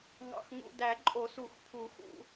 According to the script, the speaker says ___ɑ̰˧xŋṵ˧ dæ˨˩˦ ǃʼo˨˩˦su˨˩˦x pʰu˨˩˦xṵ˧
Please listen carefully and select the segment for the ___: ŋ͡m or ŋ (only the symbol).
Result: ŋ